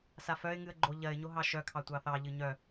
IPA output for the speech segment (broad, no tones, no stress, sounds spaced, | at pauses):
s a f œ ɪ̯ ŋ ɨ ə̯ ɡ͡ǃ o ʎ ɜ ɪ̯ ɲ o ɦ ɑ ʃ œ kʰ ɑ tʷ ɑ θ ɑ ʎ ɨ ɲ œ